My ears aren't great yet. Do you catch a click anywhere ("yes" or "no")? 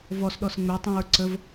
yes